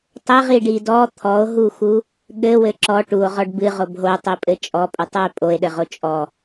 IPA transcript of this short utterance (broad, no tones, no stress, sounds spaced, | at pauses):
tˤ ɘ ʁ i ɖ i d ɔ t̪ʰ ɔ o̯ ɦ u x u | ɠ ɘ w ɘ ǁ ɔ ʈ u o̯ ʁ ɔ ɖ b ɨ ʁ o b ɦ o tˤ i pʼ ɘ t͡ʃʼ ɔ pʼ u tˤ u e̯ pʼ o e̯ ɗ ɘ ʁ o t͡ʃʼ ɔ